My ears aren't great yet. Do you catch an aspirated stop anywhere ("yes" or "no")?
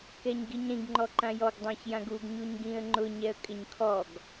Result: yes